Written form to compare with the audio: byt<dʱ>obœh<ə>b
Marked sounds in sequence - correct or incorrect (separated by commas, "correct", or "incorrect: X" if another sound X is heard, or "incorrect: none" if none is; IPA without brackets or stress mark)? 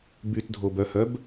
correct, incorrect: œ